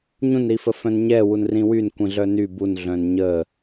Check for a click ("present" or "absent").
absent